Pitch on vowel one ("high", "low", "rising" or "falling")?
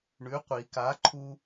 rising